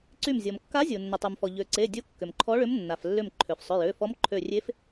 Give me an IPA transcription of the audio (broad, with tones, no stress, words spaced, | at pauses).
ǀy˧˩mzʲɔ˩mkːa˧˥zʲo˩ nːʏ˩tˤy˩mfɔ˩ ʎø˩ǀe˩˧˩ dʲo˧˥kːʏ˩mǃʰɔ˧˥ɭʏ˧˥m nːa˩flːʏ˧˩m ǃʰø˩fsˤʏ˩˧˩ jø˩˧˩fɔ˧˥m ǃʰø˧˩ rʲe˧˥f